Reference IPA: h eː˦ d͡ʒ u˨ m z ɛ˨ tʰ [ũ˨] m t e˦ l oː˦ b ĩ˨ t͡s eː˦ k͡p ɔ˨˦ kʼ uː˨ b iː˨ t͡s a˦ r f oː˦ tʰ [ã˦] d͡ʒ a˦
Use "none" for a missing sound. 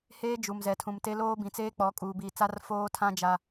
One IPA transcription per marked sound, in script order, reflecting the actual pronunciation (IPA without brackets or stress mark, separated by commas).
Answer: ũ˨, ã˦